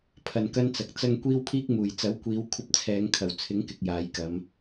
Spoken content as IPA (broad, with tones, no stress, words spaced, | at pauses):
pʰɐ˨˩nkɐ˥nt͡sɐ˨k̚ t͡sɐ˧ŋ kʷiː˥wpʰiː˥k̚muː˨˩j t͡sɐ˨˥wkʷiː˨˧w kʷʰɐ˥p̚ t͡sʰɛː˨˧ŋkʰɐ˨˩wt͡sʰɪ˨˥ŋkɪ˨k̚ jaː˨j kɐ˨˧m